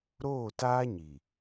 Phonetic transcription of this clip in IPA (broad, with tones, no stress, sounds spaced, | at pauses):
ɾ oː˦˨ t aː˦ ɲ i˨